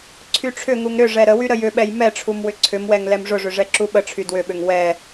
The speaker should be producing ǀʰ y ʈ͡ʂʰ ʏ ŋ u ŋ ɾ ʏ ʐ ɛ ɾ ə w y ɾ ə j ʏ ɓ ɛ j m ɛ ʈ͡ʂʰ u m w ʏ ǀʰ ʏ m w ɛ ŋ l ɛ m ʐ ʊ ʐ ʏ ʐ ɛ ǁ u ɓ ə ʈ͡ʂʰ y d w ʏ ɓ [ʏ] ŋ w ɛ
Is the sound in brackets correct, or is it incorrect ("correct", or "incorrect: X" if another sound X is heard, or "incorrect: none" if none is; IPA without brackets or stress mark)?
correct